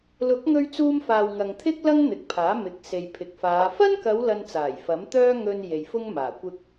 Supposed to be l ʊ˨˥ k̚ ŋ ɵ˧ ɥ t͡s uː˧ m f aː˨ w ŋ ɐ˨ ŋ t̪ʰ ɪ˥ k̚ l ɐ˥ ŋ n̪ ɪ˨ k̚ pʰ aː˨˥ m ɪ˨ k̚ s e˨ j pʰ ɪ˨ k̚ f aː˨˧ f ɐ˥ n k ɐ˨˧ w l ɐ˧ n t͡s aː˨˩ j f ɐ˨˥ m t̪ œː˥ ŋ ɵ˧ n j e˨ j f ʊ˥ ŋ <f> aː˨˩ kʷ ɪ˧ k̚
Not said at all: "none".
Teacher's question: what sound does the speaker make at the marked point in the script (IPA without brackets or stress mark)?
m